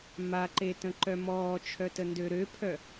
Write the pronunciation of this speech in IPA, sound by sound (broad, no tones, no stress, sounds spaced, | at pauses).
m a ǃ e t ə̃ ǃ œ m ɔː t͡ʃʰ œ t ə n d ø ɾ ø pʰ œ